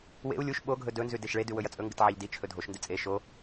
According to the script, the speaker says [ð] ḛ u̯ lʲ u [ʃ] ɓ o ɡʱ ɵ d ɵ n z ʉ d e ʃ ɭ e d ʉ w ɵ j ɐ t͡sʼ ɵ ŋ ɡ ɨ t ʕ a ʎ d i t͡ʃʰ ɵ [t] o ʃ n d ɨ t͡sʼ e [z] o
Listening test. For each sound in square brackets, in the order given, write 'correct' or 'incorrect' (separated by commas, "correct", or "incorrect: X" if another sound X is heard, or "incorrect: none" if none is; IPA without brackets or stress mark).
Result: incorrect: w, correct, incorrect: dʱ, incorrect: ʃ